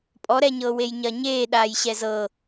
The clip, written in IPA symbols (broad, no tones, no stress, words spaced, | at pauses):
pʼɔɾɛɲɤː wejɲɐɲeː ɗaːjɕɛzɤ